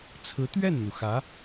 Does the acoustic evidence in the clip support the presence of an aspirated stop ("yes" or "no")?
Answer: yes